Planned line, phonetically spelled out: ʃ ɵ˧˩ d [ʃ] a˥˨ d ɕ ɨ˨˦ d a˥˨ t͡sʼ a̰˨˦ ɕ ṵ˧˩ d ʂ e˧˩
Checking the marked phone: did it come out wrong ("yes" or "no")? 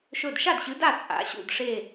no